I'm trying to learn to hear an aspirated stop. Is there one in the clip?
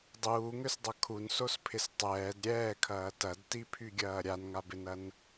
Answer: yes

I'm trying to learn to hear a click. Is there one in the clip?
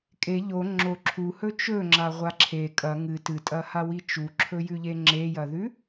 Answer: yes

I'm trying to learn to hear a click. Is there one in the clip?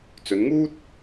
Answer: no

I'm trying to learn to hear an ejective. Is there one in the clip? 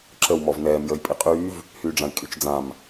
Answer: yes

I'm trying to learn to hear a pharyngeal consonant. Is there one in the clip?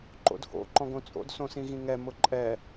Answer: no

